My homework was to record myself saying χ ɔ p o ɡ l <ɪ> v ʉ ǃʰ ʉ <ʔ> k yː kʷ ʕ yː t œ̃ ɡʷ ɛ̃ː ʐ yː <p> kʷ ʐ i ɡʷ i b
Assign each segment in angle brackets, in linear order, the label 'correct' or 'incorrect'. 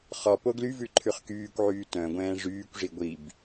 incorrect: y, incorrect: χ, incorrect: none

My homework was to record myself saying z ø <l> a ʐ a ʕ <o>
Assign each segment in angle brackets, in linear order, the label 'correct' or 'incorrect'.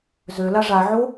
correct, correct

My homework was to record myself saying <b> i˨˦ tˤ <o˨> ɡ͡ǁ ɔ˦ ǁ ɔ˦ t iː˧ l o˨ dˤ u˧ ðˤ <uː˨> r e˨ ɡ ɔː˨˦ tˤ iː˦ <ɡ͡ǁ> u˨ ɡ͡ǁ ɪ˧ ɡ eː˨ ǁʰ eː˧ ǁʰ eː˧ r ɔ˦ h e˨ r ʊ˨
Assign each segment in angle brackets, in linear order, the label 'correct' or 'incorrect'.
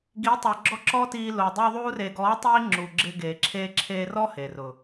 incorrect: ɡ, correct, incorrect: uː˧, incorrect: ŋ͡ǁ

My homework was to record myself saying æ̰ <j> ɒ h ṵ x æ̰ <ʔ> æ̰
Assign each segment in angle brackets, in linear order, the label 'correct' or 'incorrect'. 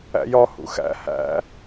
correct, incorrect: h

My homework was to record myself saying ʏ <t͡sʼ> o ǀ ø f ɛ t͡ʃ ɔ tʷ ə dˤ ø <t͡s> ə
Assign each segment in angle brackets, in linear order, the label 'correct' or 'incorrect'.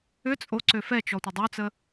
correct, correct

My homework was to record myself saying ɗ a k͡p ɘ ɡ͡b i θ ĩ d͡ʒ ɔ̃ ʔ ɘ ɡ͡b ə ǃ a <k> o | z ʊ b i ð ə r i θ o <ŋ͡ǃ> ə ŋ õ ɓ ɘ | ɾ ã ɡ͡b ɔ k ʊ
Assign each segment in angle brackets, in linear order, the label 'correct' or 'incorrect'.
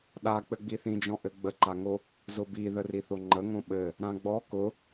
incorrect: ŋ, correct

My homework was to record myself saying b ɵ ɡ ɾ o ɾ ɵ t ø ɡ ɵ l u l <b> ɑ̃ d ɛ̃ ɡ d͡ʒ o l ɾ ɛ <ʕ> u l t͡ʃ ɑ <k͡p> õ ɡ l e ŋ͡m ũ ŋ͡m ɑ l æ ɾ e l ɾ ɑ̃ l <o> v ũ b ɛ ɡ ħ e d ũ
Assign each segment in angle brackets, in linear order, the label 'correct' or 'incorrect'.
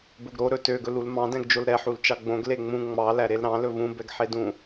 incorrect: m, incorrect: ħ, incorrect: ɡ͡b, incorrect: ɵ

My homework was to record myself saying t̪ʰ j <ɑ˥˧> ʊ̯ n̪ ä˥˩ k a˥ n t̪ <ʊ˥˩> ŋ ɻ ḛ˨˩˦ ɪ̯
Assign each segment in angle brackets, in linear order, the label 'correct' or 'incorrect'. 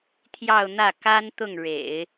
correct, correct

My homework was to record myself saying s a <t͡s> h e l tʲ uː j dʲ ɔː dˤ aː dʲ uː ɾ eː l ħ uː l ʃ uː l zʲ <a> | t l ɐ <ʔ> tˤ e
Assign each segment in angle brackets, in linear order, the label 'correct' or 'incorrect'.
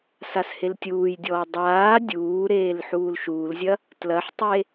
incorrect: s, incorrect: ɐ, incorrect: ħ

